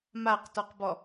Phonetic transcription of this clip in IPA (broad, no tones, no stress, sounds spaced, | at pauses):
m a q t ɔ q b ɔ